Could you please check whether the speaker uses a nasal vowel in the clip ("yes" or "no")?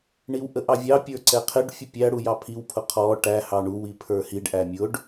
no